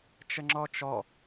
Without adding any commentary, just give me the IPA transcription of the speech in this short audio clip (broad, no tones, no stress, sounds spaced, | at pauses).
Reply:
t͡ʃ ə ŋ͡ǁ ɔ t͡ʃ ɔ